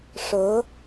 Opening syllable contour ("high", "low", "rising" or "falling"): rising